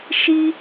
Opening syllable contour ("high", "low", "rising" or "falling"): high